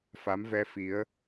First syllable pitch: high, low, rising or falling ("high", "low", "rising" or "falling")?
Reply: rising